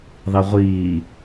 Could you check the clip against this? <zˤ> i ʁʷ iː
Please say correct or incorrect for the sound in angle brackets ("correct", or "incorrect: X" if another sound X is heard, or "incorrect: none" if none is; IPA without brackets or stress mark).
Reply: incorrect: ðˤ